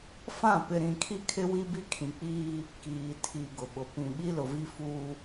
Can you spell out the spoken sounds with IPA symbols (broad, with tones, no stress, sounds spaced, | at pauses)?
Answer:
f ã˦˨ p ɪ˨ ɾ ĩ˨ kʰ i˦ kʰ ɪ˦ w i˦ b i˦ kʰ ĩ˨ k͡p iː˦ | k iː˨ tʰ i˨ ɡ ʊ˨ ɓ ʊ˨ p ĩ˨ ɓ i˦ l ʊ˨ v i˦ f uː˦